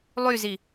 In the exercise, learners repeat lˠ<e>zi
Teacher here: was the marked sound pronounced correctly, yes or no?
no